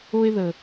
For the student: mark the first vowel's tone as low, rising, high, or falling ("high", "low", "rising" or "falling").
high